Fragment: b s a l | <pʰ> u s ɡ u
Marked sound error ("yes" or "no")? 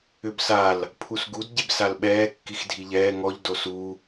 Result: no